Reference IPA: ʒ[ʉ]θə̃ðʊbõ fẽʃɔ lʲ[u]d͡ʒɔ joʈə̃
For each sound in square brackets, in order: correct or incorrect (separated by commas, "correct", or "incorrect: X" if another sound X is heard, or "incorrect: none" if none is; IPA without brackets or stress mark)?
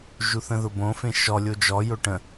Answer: incorrect: u, incorrect: o